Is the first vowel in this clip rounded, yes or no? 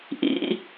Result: no